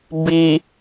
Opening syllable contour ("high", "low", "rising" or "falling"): low